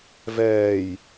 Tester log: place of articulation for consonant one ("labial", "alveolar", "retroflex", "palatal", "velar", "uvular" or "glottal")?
labial